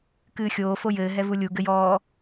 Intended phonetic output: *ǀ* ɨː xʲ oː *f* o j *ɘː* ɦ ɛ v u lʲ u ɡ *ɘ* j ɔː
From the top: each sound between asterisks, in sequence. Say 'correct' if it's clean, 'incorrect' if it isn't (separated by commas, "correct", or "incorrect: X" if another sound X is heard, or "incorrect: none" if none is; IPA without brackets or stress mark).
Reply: incorrect: k, correct, correct, correct